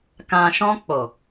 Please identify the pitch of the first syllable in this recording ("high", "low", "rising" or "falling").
low